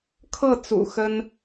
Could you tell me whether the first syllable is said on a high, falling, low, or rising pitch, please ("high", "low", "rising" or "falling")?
falling